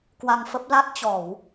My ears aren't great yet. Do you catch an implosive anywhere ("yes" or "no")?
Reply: no